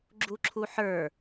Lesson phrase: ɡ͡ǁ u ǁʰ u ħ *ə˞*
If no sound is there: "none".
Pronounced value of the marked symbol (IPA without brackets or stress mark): ə˞